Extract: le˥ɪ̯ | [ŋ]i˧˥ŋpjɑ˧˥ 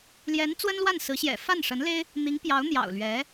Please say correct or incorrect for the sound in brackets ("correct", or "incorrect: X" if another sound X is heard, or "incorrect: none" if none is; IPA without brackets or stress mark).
incorrect: n̪